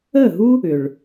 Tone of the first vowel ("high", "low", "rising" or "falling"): falling